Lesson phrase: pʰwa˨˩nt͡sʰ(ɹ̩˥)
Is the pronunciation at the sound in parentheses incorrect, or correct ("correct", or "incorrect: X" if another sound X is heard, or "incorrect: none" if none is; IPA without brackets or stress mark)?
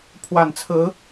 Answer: incorrect: ɹ̩˧˥